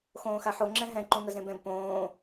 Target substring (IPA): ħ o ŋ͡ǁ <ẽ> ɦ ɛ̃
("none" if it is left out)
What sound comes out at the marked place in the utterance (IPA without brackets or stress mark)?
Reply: ɛ̃